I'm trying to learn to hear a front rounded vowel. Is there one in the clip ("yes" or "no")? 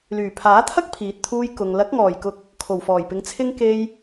yes